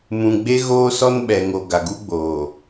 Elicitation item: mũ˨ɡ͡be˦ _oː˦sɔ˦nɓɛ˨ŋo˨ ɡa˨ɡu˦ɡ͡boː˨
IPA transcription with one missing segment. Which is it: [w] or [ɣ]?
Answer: ɣ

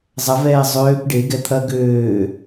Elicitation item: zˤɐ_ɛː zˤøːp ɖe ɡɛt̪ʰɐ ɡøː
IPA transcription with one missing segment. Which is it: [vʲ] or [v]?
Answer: v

